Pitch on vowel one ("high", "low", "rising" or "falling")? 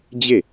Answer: falling